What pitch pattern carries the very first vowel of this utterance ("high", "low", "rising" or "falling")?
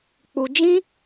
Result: high